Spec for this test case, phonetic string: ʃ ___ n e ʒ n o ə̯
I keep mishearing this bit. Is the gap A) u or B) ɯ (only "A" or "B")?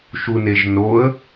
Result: A